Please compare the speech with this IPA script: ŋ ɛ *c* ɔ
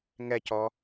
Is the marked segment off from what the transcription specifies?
no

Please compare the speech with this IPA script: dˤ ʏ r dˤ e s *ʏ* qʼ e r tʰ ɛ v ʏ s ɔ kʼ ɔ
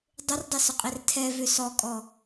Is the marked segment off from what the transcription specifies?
no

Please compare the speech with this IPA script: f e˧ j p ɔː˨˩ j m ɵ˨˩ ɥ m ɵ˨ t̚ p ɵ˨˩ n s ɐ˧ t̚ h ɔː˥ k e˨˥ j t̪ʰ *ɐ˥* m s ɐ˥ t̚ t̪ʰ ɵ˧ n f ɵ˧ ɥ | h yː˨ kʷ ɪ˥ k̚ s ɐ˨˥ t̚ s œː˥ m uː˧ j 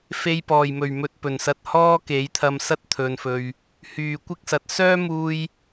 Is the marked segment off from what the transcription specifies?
yes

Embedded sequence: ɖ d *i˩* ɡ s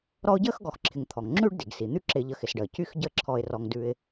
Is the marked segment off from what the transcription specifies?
no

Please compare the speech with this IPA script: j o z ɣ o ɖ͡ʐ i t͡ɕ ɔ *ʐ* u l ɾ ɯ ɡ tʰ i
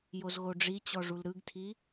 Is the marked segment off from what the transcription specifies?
no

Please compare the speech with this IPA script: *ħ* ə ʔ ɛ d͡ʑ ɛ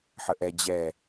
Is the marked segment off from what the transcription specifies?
no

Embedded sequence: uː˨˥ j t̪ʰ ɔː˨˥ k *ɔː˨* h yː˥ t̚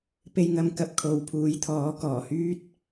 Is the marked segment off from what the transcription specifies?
yes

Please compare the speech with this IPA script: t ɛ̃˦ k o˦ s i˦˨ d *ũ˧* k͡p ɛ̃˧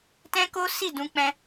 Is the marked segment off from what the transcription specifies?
no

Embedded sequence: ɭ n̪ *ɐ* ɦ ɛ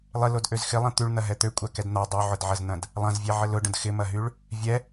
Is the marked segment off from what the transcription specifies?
no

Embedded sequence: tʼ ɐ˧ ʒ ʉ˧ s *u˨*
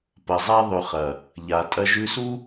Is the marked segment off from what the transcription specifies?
yes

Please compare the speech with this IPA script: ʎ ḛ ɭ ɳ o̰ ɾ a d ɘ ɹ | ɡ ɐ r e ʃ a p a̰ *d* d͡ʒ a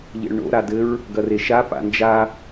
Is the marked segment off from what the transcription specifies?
yes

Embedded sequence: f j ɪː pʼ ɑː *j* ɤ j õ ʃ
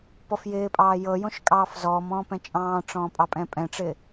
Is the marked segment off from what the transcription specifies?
no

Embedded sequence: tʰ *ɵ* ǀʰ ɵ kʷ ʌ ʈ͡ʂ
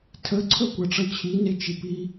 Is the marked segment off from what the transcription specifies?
yes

